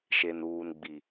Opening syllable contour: low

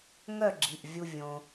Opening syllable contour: falling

